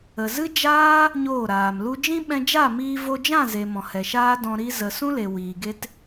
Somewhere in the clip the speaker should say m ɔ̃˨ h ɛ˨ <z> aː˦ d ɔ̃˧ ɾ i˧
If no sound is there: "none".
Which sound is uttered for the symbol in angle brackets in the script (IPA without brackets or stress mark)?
ʃ